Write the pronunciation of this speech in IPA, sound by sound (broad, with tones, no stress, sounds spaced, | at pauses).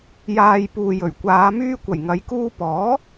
j aː˨ j p uː˨ j ɵ˨˩ ɥ kʷ aː˨˧ m yː˧ kʷ ɐ˨˩ j ŋ ɐ˨˧ j k uː˧ p ɔː˨˥